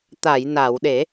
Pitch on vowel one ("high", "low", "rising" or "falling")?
low